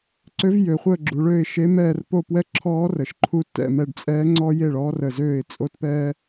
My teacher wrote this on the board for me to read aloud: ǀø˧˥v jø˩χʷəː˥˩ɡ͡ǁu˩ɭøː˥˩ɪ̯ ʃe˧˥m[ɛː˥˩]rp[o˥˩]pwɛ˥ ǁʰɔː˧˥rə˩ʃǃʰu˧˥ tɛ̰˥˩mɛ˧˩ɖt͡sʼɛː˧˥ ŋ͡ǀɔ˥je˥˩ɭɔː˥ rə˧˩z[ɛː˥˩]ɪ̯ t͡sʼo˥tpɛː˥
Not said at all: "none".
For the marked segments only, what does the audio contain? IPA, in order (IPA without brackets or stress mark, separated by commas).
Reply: ɛː˥˩, o˥˩, øː˥˩